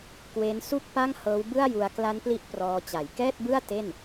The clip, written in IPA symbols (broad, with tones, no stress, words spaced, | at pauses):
kwe˦˥nsu˥˩k̚ pa˥˩ŋhɤː˦˥wbɯ˥˩a̯ju˧a̯ kla˦˥npli˦˥ʔ prɔː˧t͡ɕa˨˩j kɛː˥˩t̚bɯ˥˩a̯ te˥˩n